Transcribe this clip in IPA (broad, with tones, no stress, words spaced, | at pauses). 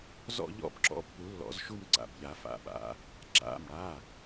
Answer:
zɔ̰˥˧ʎɔ̰˥˧bǁɔ̰˨˥pːu˨˩˦ lːɔ̰˨˩˦zʃu˥˧m ǀa̰˩˧˩bʎa˨˩˦fa̰˩˧˩ɓa̰˨˥ | ǁa̰˩˧˩mɽa˩˧˩